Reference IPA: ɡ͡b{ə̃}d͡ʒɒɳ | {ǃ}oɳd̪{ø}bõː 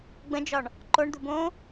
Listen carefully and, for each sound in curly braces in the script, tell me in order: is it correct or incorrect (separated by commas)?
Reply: correct, correct, incorrect